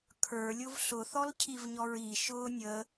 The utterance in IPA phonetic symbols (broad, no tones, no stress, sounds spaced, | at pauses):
kʰ ə˞ lʲ ʊ v ɬ ʊ θ ɔ l cʰ i v ɲ ɔ ɹ i ʃ ʊː nʲ ə